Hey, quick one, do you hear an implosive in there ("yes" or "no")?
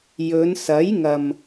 no